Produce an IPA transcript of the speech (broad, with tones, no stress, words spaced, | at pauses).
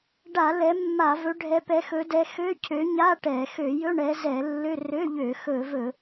ɖa˧˩˧ lɛ˨˦mːa˧˩˧vɵ˨˦ ɖʱɛ˨˦pɛ˨˦xɵ˨˦ dɛ˨˦xø˧˥˧ cʰø˨˦ɲa˧˥˧ ʈɛ˧˩˧ xø˧˩˧jɵ˧˥˧ ɳɛ˨˦zɛ˧˩˧lːø˧˥˧ rø˧˥˧ʎø˧˩˧ xɵ˧˩˧vɵ˧˩˧